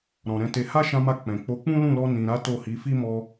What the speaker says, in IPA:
ɾɔ̃˨ɾɛ̃˨˦te˧ ha˦ʃã˧ma˧ k͡pɛ̃˨ k͡po˨˦k͡pũ˦lũ˦˨lɔ˧ nĩ˨ɾa˨˦ to˦˨hi˨˦ fi˦mɔ˧

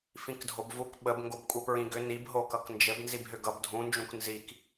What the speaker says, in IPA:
fĩkdʱobvuk ɓəb ŋɡobkʷʼipɹĩɡʏ nibɦo kʌknd͡ʒɘb nzibɦʏɡʌb dʱũnd͡ʒũk nzik

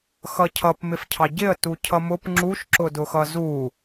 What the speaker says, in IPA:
xʌcʰʌp mɪfcʰɑɟɪə̯ tucʰʌmʊp ŋ͡ǁuʃ ǁʊdʊxʌzu

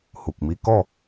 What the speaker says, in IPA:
hu˨k̚mi˦ kɔ˥˧

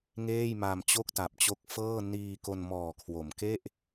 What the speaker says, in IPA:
ŋeː˥˩jma˧mt͡ɕo˥˩k̚ ta˨˩p̚t͡ɕo˦˥k̚fɤː˥˩ niː˧ko˧n mɔː˨˩kʰwo˩˦m ke˥˩ʔ

